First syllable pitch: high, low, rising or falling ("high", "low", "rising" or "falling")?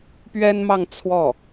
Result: high